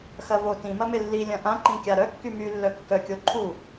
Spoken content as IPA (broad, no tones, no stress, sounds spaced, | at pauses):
x ɐ v o t ĩ m ɐ m ɪ lː i lʲ ɐ̃ ʔ ã ǃ ĩ kʲ a ɾ œ kː y m y lː œ kː œ kʲ o ǃʰ u